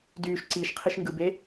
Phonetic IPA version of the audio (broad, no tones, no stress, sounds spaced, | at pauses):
d yː ʃ ǀ iː ʃ qʰ i ʃ ŋ ɡ ɯ b e